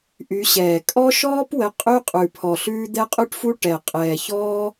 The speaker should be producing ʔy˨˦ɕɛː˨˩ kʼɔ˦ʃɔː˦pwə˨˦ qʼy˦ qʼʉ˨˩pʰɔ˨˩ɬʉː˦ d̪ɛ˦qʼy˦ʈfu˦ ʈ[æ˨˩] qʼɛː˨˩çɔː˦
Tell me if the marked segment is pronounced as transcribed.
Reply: no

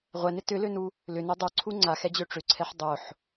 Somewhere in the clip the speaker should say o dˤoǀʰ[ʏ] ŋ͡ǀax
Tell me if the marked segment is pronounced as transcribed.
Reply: no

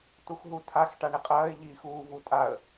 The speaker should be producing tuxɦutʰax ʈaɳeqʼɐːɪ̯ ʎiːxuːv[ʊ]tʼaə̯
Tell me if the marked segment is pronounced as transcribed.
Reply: no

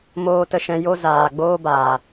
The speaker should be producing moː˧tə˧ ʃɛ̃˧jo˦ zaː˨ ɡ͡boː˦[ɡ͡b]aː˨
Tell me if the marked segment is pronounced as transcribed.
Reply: no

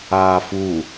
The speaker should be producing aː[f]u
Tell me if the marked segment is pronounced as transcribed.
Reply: yes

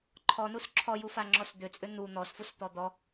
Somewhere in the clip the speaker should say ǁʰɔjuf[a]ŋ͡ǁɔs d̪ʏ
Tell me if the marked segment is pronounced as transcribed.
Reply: yes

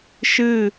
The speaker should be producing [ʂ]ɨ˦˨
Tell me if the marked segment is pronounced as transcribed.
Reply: no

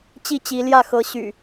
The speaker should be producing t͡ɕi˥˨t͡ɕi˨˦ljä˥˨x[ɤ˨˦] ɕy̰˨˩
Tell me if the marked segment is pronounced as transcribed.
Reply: yes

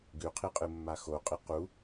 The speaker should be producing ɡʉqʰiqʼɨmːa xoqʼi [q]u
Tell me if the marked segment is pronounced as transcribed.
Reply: yes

